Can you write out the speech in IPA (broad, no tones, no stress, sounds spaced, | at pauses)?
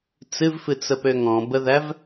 t͡s ɨ v f ɨ t͡s ə p ø ŋ ɔ̃ b ə ð æ v